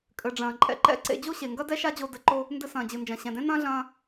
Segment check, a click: present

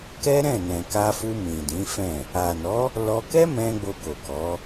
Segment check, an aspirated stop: absent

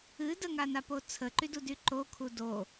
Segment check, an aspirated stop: present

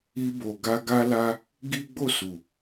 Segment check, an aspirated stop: absent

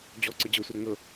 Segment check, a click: present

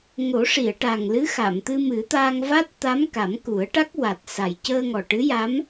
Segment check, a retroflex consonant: present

